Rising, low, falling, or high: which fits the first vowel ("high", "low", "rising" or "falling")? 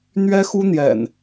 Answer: high